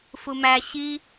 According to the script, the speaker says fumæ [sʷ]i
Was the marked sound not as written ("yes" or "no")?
yes